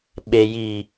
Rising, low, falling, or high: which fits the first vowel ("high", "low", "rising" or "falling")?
low